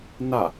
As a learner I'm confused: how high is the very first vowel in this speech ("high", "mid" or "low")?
low